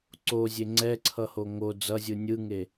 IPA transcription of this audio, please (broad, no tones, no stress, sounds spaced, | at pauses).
ǀ o zʲ e ŋ͡ǀ ɛ ǀʰ ʌ h o ŋ o d͡z ʌ zʲ ɯ nʲ ɯ ŋ e